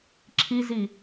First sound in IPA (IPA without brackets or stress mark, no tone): ǁʰ